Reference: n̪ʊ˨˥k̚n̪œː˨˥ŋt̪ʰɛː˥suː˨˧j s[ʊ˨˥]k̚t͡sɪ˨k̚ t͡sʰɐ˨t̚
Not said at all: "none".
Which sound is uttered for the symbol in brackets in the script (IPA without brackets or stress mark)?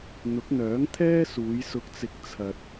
ʊ˨